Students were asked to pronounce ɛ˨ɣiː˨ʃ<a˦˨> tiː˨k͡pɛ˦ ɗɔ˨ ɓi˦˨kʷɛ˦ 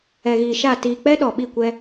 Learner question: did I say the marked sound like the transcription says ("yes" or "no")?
yes